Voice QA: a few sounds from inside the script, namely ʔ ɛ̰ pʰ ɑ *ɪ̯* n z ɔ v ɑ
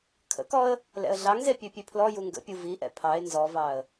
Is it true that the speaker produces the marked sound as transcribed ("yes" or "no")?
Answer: yes